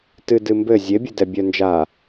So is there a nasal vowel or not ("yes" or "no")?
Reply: no